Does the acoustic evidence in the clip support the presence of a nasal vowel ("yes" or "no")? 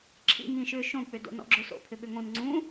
yes